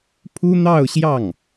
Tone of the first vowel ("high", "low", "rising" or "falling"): high